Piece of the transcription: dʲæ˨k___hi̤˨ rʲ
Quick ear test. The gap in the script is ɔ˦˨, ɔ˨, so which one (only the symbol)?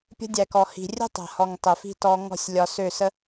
ɔ˨